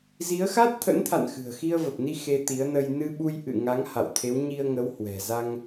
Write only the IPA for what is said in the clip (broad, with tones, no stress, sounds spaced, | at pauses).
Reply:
z i˨˦ ə̯ x a˦˥ t̚ t̪ʰ ə̰˧˥ n t̪ʰ a̰˧˨ n x ɨ̤˨˩ ə̯ x i˧ ə̯ v ə˨˩ p̚ n i˧ x e˧ t̪ i˨˦ ə̯ n ə˧ j n ɨ˧ ɓ u˧ j ʔ ɨ̰˧˨ ŋ a˨˦ ŋ h a̰˧˨ w t̪ʰ e˨˦ w ɲ i˧ ə̯ ŋ ə˨˦ w h w ɛ̤˨˩ z a˧ ŋ